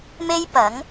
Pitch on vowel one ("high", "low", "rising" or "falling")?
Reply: high